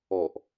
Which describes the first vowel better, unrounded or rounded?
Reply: rounded